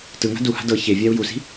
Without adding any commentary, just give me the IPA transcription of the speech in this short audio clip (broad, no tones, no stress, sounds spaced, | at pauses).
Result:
t ɯ ŋ a̤ d u h a̤ d ɤ ç e vʲ a u̯ j u s i̤